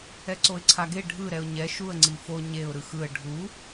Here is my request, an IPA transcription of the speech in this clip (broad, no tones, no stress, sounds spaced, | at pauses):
ɛ ǀ o ɪ̯ ǀʰ a ɡ e ɖʱ ɯ ɾ ɛ ʊ̯ ɲ ɛ ʃ u ə̯ ŋ͡ǀ i f o ɲ e ʊ̯ ɾ ɯ x ɯ ə̯ ɖʱ u